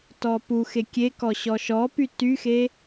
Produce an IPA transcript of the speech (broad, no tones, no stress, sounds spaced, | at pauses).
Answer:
t ɔ p u x e kʲ e k ɔ ɕ ɔ ʃ ɔ p y t y x e